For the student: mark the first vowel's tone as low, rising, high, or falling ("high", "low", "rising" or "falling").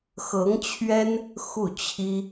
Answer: rising